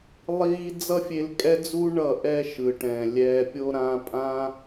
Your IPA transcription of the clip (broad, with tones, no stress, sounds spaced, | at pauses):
lˠ iː˦ d͡z ʌ˦ fʲ e˧ l kʼ ɛ˦ d͡z u˦ ɳ ʌ˦˨ ʔ ɛ˦ ʃ ɯ˨ ʈ ɛ̃˨ lʲ ɛː˧ pʲ o˧ ɾ ã˧ pʼ ã˦